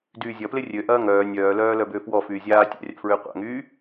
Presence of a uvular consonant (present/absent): present